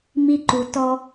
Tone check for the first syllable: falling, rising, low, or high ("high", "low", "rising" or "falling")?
high